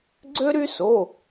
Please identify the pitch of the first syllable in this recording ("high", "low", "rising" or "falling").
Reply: high